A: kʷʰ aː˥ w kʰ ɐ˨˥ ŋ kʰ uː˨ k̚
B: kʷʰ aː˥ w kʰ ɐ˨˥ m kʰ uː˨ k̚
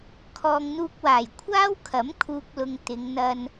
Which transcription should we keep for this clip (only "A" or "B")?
B